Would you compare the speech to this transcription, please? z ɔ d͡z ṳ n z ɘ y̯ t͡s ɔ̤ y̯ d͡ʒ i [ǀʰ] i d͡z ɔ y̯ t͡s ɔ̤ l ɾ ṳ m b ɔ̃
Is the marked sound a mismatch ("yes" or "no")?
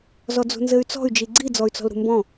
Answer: yes